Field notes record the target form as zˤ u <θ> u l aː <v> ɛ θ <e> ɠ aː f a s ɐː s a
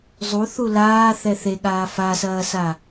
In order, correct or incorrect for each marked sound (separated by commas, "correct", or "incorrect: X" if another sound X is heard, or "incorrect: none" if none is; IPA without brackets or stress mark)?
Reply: correct, incorrect: θ, correct